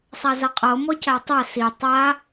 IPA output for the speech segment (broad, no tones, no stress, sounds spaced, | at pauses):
sˤ a z a qʼ ɤ m ɔ c a tˤ a s i tˤ a